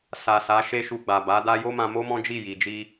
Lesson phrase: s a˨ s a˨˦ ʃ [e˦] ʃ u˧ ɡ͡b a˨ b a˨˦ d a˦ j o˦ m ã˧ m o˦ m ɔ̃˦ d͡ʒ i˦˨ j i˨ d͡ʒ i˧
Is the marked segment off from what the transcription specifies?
no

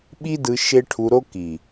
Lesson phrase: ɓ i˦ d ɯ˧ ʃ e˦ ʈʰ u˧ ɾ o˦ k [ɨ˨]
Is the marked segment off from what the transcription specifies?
yes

